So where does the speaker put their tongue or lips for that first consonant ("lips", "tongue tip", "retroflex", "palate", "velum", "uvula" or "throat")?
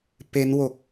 lips